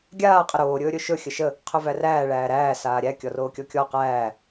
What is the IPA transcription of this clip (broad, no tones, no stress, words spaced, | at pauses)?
ɡʲaː qʼəɾoː ɾʲɵːɾʲɵʃɵ xʲəʃə | qʰɵværæː ɭæːɾæː saːɾʲæ kʲɔroːkʲɔkʲɔ qæː